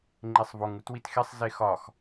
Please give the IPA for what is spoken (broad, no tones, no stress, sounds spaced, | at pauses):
ŋ͡ǃ e sˤ v o ŋ u t w i t x e sˤ z e x ɒ x